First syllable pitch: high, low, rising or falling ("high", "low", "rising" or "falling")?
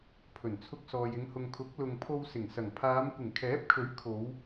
low